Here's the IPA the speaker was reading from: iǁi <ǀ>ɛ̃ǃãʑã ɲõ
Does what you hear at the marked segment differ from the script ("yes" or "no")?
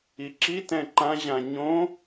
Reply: yes